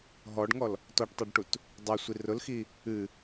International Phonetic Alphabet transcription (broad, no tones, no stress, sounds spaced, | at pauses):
ɦ ɔ ɖ ŋ ɔ l | t ɔ ʈ tˤ o ɖ ʈ u t | dˤ ʊ sʷ i r ʊ l x i | ɨ